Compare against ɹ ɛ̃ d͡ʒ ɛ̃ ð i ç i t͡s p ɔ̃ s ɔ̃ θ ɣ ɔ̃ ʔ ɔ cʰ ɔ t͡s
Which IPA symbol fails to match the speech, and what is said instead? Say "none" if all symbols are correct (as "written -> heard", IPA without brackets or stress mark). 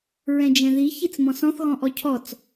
p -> m